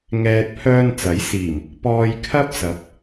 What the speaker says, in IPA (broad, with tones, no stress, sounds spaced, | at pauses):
ŋ ɛː˨ t̚ pʰ œː˧ n t͡s ɐ˨˥ j s iː˨˩ m | p ɔː˧ j kʰ ɐ˥ p̚ s ɐ˨˥ p̚